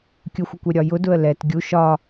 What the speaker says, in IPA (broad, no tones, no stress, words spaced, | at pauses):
kʲʊxʷəkʷɛɾʲɒ jʊdʊə̯ lɛt ɡʲu ʃɒ